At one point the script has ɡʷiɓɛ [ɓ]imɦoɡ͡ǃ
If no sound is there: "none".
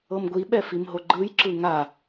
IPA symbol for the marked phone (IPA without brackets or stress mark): f